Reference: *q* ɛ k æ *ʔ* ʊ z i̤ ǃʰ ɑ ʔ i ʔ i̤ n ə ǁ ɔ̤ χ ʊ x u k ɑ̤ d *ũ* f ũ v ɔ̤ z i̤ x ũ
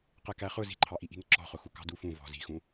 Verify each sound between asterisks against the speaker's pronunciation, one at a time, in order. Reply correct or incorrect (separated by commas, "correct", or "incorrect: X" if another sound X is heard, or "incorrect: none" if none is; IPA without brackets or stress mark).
correct, incorrect: χ, incorrect: u